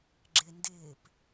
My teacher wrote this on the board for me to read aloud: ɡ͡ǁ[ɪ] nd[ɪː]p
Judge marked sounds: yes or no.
yes, yes

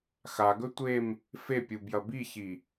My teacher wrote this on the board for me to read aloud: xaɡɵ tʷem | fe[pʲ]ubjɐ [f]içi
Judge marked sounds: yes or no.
yes, no

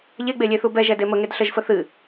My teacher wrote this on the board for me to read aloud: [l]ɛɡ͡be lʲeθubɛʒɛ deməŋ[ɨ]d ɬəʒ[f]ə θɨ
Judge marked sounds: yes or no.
no, no, yes

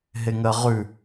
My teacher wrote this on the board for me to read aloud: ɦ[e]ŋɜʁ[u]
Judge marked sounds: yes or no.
yes, no

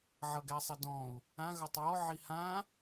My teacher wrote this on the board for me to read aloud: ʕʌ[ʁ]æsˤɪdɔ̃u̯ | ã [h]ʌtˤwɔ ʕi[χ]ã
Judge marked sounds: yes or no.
no, no, no

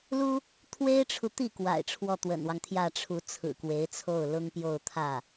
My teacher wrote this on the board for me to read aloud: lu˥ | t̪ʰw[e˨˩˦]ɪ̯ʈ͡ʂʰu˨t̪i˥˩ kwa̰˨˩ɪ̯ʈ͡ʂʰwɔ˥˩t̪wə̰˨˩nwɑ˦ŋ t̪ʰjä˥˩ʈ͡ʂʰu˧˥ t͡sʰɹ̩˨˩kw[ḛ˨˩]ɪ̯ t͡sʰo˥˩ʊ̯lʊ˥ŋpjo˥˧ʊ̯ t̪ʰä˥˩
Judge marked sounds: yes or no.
no, no

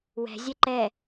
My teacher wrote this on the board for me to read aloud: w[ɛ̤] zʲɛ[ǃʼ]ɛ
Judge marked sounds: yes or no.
yes, no

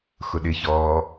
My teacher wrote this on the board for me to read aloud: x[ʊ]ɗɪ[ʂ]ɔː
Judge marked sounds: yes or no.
yes, no

